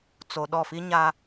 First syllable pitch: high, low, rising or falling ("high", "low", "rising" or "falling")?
low